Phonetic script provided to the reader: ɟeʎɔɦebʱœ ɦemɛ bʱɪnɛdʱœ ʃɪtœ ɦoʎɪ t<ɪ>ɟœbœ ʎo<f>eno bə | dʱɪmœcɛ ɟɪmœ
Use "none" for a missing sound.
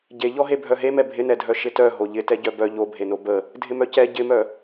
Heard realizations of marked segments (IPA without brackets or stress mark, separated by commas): ɛ, bʱ